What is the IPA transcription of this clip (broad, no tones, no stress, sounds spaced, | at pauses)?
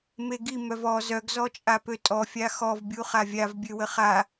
m e ɡ i m œ v ɔ z œ ɡ z ɔ t͡ʃʼ a p ø tʼ ɔ fʲ a x ɔ v bʲ u χ a vʲ a v bʲ ø w ə χ a